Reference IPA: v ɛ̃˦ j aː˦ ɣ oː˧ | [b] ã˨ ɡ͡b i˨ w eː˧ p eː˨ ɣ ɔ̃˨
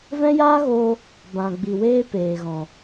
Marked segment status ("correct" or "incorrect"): correct